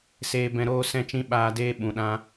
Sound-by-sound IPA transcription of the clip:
s eː˧ b ɛ̃˧ ɾ oː˦ s ɛ̃˦ t͡ʃ ĩ˦ ɓ aː˧ d eː˦ ɓ ũ˨ ɗ ã˧

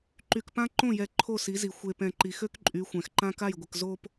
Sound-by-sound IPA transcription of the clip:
ǃ y˨ k p ã˦ ǃ õ˦˨ j ɛ˨ ǃʰ o˦˨ s i˨˦ z i˨ xʷ e˨ p ɛ̃˨ ǃ i˨ x ø˦ k ǃʼ y˨˦ xʷ ɛ̃˨ x ǃ ã˦ k a˦˨ j ɡʷ ə˨ k z o˨ p

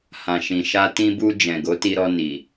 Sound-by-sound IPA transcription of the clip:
h ã˨ ʃ ĩ˨ ʃ a˧ t ĩ˧ b u˧ d͡ʒ ɛ̃˨ ɡ o˨˦ t i˧ ɾ ɔ˧ n i˨

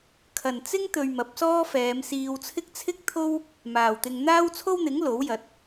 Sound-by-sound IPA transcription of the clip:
kʰ ɐ˨ n t͡s ɪ˥ ŋ t̪ ɵ˧ ɥ m ɐ˨˥ p̚ s ɔː˥ f ɛː˨˧ m s iː˧ w t͡sʰ ɪ˥ k̚ t͡sʰ ɪ˥ k̚ t̪ʰ o˥ w | m aː˨ w t̪ ɪ˧ ŋ n̪ aː˥ w t͡sʰ o˥ w n̪ ɪ˨˥ ŋ l o˨˥ w j ɐ˨˥ t̚

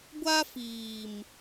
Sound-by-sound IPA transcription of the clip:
ɡʷ a˦ f iː˨ m

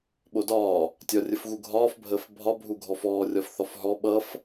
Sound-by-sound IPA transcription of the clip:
ɓ o d ɒː | tʲ ɒ rʲ ə f ɣ u ɡʱ ɒː f bʱ əː f bʱ ɒ bʱ u ɡʱ ɔ f ɔː rʲ ɒ f θ ɒ f ɦ ɔ ɓ ʌ f

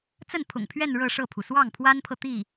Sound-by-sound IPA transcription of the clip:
t͡s ə˥˩ n pʰ ʊ̰˨˩ ŋ pʰ ɥ ɛ˥˧ n ɻ ɤ˥˧ ʂ ɤ˥˩ pʰ u˩ s w ɑ˥˩ ŋ pʰ w a˥ n pʰ ɤ˨ t̪ i˥˩

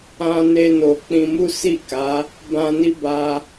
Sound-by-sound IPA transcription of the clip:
ã˧ n e˧ n o˨ k͡p ĩ˧ m u˦ s i˦˨ k a˨˦ | b ã˧ n i˦ b a˧

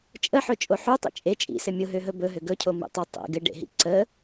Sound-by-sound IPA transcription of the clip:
t͡ʃʼ ə ħ ɵ t͡ʃʼ o ħ u tˤ ḭ t͡ʃʼ e t͡ʃʼ ḭ s ɘ mʲ ʊ ɦ ø ɦ ɵ b ɵ ɦ ø ɡ ɵ cʰ o m ḭ tˤ ʊ tˤ ḭ ɡ ɘ ɖ ḛ ɦ ḭ ǀ ə

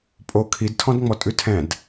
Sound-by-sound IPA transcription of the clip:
pʼ o kʰ i d tʰ ɔ̃ d ŋ͡m ɔ tʼ ʉ tʰ ɛ̃ d

